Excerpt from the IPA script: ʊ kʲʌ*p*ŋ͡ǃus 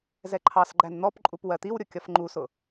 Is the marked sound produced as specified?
no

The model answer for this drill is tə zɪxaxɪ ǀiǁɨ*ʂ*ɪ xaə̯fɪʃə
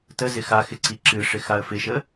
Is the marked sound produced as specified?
yes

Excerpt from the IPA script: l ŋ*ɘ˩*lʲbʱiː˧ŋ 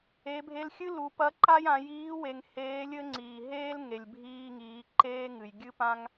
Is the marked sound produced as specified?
no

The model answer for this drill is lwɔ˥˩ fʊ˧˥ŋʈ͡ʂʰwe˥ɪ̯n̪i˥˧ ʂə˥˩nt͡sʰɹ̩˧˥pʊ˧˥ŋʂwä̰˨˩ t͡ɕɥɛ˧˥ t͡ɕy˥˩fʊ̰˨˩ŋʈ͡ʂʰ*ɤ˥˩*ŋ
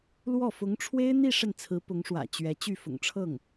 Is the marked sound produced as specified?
yes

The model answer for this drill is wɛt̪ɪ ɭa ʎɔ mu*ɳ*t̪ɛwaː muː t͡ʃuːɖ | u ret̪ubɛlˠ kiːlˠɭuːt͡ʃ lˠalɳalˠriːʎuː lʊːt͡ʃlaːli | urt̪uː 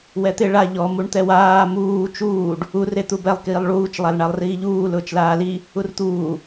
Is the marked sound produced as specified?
yes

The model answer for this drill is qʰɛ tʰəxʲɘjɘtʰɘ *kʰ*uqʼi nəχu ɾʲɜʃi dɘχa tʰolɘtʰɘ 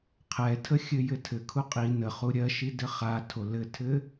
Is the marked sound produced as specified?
yes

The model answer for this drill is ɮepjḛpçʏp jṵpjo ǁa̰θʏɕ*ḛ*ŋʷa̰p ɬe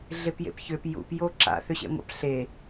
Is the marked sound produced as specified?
yes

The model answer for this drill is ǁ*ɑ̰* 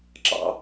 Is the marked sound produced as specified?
yes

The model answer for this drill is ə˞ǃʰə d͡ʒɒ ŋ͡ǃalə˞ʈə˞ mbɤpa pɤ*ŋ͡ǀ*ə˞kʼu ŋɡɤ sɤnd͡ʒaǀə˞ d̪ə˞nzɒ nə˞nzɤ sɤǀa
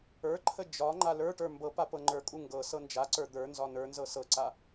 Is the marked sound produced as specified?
no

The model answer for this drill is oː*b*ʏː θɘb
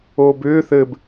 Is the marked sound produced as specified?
yes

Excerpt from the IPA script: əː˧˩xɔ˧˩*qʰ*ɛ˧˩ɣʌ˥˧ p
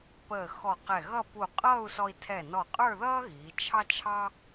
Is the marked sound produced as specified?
no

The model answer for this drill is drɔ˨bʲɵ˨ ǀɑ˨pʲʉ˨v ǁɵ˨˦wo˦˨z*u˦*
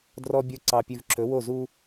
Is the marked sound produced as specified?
yes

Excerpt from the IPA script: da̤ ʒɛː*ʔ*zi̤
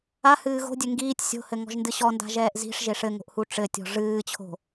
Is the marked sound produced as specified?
yes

